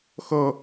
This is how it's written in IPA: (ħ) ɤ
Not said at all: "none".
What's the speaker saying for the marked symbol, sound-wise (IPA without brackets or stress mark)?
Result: x